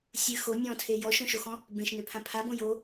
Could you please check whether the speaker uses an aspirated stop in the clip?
yes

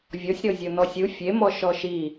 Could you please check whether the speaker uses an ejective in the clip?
no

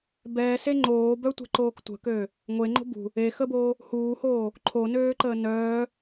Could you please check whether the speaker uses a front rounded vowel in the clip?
yes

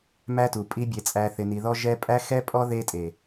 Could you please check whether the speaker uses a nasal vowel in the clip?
no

